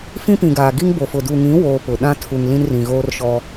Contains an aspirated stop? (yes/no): yes